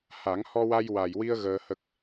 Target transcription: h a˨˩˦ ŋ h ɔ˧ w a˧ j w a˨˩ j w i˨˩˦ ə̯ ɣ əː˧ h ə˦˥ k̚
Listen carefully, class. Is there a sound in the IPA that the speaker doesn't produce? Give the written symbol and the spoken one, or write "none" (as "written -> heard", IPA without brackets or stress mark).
i˨˩˦ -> i˧